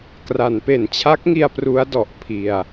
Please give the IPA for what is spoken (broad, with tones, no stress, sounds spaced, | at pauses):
k r a˩˦ n p e˩˦ n t͡ɕʰ a˦˥ k̚ ŋ i˧ a̯ p r u˦˥ a̯ d ɔ˨˩ ʔ pʰ i˧ a̯